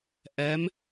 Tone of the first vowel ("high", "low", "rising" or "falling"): rising